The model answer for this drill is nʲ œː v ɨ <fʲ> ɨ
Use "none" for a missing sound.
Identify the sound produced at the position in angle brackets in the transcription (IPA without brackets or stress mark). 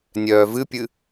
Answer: pʲ